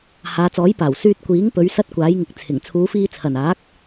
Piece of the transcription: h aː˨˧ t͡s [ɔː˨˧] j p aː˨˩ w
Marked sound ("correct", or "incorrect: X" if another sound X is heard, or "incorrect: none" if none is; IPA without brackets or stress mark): incorrect: ɔː˨˥